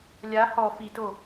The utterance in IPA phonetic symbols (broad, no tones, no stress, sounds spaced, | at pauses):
lʲ a h ɔ f i t o